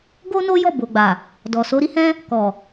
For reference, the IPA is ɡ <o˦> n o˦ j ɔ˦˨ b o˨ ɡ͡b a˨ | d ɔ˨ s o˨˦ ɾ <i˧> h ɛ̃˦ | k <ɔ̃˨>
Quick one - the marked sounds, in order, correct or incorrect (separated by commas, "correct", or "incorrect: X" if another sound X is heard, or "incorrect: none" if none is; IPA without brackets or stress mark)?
correct, incorrect: i˦, incorrect: ɔ˨